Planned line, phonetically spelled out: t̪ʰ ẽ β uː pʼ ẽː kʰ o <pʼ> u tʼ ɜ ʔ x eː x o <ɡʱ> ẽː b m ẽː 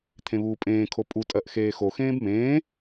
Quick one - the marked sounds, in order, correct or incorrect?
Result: correct, incorrect: x

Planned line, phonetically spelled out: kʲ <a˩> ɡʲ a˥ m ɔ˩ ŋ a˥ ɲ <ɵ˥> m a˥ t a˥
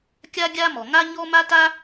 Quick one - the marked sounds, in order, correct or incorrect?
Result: incorrect: a˥, incorrect: ɔ˥

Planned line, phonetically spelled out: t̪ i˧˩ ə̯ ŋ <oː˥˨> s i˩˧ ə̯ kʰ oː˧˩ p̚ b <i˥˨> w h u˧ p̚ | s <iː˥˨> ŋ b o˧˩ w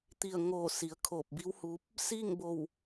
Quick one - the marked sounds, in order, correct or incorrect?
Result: incorrect: oː˧˩, incorrect: i˧˥, correct

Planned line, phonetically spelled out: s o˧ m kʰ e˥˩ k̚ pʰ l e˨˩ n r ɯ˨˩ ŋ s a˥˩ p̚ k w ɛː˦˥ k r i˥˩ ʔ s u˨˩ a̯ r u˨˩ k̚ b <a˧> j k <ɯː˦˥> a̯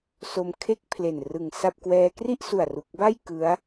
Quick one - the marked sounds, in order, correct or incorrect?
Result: incorrect: a˥˩, incorrect: ɯ˦˥

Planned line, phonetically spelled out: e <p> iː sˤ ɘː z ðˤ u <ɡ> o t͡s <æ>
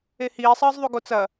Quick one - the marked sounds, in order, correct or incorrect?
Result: incorrect: h, correct, incorrect: ɐ

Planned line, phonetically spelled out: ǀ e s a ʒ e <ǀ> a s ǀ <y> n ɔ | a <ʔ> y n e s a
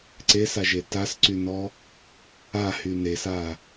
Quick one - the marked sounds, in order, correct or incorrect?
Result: incorrect: t, correct, incorrect: h

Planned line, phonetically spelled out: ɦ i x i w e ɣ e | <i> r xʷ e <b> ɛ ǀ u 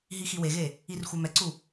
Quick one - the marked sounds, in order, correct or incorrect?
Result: correct, incorrect: m

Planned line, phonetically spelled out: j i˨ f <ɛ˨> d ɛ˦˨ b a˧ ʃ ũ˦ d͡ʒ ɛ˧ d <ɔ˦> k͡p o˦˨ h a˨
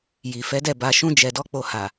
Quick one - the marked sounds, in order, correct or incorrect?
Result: incorrect: ɛ˨˦, correct

